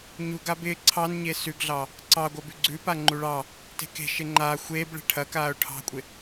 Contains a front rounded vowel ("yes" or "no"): no